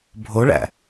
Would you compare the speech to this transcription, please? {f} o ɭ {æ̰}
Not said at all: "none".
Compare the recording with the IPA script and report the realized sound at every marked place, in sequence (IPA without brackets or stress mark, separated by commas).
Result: bʱ, æ̰